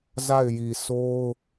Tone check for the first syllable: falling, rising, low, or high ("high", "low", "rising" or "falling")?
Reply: falling